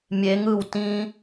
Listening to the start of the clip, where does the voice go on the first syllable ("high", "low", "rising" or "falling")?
rising